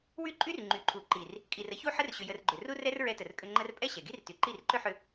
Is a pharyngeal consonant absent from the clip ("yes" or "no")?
no